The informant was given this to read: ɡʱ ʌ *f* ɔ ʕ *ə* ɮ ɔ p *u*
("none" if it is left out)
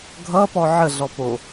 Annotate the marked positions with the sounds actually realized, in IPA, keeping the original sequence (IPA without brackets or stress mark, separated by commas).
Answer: p, ə, o